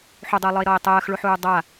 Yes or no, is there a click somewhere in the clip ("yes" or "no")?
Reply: no